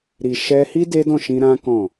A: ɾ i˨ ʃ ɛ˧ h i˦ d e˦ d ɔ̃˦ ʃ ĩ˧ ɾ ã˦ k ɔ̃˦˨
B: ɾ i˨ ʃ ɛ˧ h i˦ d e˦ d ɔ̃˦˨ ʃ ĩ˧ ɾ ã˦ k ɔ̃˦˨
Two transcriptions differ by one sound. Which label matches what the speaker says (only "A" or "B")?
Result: B